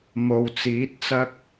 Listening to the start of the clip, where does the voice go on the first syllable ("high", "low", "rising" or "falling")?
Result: low